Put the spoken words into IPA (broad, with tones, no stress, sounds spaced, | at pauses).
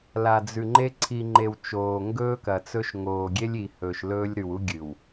l a˨ d͡z ʉ˨ ŋ͡ǃ e˦ ǀʰ i˨ ŋ͡ǃ e˨ w t͡ʃ oː˨ ŋ ɡ ɵː˦ k ɐ˨ t͡s ɵ˦ ʃ ŋ oː˨ ɡʲ e˦ lʲ i˨ h ɵː˨ ʃ l ɵː˦ lʲ ɾ ʉ˨ w u˦ ɡʲ ɨ˨ w